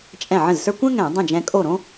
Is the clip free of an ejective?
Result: no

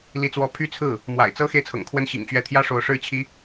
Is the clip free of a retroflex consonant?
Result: no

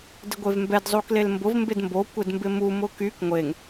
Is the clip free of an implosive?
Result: yes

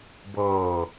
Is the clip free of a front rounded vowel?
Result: yes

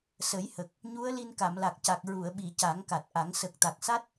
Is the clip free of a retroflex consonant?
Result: yes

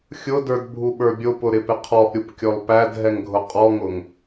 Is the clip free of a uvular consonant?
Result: no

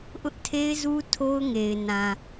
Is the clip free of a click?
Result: yes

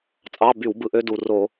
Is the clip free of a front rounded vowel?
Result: no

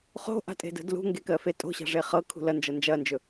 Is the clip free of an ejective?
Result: no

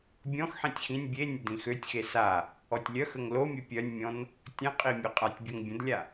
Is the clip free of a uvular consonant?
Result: no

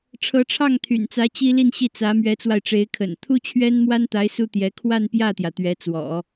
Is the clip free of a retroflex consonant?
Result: no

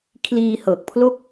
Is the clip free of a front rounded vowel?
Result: yes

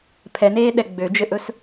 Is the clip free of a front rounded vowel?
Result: no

